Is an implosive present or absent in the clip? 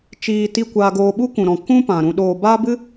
present